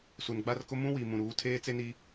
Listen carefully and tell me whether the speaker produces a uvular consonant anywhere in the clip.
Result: no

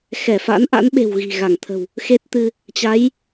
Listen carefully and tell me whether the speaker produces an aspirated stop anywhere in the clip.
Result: yes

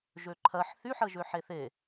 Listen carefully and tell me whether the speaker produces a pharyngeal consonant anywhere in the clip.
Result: yes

